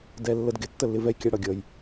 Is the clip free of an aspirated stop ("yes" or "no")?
yes